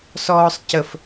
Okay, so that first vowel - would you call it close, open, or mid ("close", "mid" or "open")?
mid